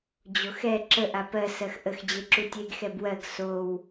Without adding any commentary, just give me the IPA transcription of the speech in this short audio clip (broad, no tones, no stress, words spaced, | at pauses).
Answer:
d͡ʑoxɛ ǁə ʔapɜ sɜxʔəx d͡ʑeǁutʲeɡ xɛbwɜɡ sow